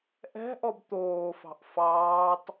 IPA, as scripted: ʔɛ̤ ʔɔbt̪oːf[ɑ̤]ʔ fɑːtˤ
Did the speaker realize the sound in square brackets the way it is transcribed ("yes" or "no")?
yes